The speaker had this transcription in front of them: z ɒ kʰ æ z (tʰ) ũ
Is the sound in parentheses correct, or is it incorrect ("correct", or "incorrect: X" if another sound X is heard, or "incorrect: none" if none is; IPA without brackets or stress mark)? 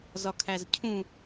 incorrect: cʰ